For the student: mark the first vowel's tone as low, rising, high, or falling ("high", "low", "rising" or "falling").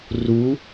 rising